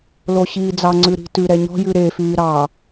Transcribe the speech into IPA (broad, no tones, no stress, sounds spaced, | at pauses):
l o ɕ iː d͡z ɑ ŋ͡ǀ ʉ ɾ i̤ t ʉ ɾ ɛ ɲ ɔ̤ j ʉ ɾ e f yː ɾ ɑ